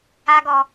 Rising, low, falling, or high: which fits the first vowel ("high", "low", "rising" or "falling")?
high